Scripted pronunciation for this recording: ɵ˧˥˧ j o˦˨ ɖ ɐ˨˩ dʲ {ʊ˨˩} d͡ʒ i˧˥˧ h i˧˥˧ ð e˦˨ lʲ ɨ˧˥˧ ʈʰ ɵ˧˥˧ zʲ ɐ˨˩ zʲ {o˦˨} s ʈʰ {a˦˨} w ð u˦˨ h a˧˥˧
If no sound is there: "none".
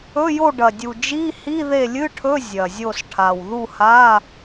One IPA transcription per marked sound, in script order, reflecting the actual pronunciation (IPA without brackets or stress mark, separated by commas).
u˨˩, o˦˨, a˨˩